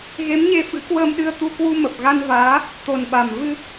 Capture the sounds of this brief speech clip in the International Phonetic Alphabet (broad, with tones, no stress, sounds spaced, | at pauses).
ɣ e˨˦ m ɲ e˧ f ɨ̰˧˥ k w əː˧ m ɗ ɨ˧ ə̯ t̪ u˧ k w u˧ m ə˨˩ p̚ ɣ a˧ n v aː˨˦ | t̪ o˨˩ n ɓ a˨˩ m v ɨ˧